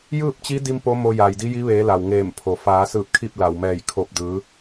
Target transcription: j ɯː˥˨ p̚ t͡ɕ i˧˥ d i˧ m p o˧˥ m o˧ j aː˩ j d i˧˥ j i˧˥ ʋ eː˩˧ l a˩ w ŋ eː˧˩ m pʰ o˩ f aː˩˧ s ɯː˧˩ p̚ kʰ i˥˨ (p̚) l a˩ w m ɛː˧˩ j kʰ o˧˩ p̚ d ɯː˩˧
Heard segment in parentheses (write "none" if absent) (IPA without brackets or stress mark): p̚